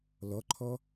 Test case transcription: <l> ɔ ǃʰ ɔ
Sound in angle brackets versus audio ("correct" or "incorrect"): correct